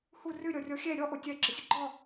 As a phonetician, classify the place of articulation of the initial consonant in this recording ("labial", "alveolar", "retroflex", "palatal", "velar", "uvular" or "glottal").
glottal